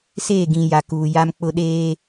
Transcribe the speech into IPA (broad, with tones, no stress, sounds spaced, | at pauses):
s eː˦˨ ɡ ĩ˨ j a˨ k uː˨ j a˦ m k͡p ʊ˦ ɗ eː˦